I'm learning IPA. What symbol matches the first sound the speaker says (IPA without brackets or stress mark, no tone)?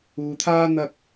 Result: uː